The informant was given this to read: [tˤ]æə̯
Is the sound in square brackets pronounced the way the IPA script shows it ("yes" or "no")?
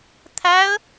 no